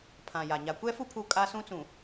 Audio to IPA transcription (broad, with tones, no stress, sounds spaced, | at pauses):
pʰ ã˨ j a˨ ɲ a˨ kʷ ɛ˦ f u˦ pʰ u˦ kʼ a˦ s ũ˦ t͡s ũ˨